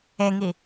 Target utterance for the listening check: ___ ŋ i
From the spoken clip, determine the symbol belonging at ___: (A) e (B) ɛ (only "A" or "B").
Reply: A